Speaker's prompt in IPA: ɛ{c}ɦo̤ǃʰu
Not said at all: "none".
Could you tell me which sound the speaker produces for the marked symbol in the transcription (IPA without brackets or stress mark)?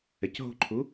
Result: c